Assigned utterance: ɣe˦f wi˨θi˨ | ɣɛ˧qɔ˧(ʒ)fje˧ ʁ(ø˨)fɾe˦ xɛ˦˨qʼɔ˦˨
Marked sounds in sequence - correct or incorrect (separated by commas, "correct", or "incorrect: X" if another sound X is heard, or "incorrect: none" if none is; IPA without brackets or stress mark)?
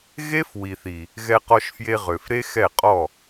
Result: incorrect: ʃ, correct